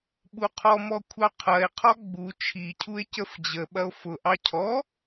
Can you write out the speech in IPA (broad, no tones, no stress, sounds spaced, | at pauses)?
ɓ u qʰ ɔ m ɔ kʷʰ ɑ qʰ ɐ e̯ qʰ ɔ ɡ͡b u t͡ʃʰ i cʰ u e̯ c ə f d͡ʑ ə ɓ ɐ o̯ f ʊ ʔ ɑ cʰ ɔ